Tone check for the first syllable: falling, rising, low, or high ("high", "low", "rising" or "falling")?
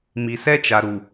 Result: low